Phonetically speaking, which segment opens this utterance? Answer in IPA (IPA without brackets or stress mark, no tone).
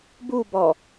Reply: b